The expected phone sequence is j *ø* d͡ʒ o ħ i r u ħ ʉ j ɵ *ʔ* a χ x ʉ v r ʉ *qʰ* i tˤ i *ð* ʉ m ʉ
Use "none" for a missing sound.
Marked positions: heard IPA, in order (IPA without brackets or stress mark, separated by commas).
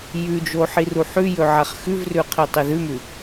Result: ʉ, ʕ, qʰ, ð